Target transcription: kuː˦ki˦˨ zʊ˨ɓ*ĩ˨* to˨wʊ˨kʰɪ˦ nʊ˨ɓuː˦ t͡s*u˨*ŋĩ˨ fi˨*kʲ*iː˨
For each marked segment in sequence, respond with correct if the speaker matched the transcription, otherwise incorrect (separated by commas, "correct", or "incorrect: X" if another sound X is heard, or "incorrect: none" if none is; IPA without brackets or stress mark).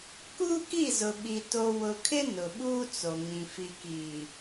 incorrect: i˨, incorrect: o˨, incorrect: k